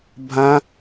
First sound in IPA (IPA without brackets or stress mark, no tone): bʱ